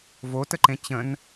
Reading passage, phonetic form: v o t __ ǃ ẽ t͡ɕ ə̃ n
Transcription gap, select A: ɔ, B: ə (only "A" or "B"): B